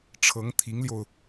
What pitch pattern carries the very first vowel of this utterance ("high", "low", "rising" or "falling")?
rising